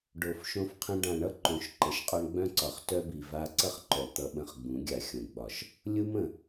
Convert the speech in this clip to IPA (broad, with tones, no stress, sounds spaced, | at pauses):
ɖ o˨ f ʃ õ˧ f qʰ ə̃˧ ɖ ã˨ ɳ ʌ˦ ǃ õ˨ ʃ ǃ ə˨ ʃ qʼ ɒ˦ ɳ ɡ͡b œ̃˦ ǀ ɒ˨ χ t œ˧ b i˨ v a˧ ǀ ʌ˦ χ ǃ œ˨ t̪ ʌ˧ ɓ ə̃˧ χ ɡ͡b ũ˨˦ ɡʲ a˨ xʲ õ˨ ɡ ɡ͡b ɒ˨ ʃ | lʲ u˦ m ə̃˨